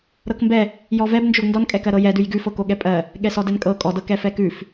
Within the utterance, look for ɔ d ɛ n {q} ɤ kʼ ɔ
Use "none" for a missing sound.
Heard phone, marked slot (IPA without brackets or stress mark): kʼ